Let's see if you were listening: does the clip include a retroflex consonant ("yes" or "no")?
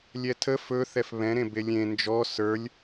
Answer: no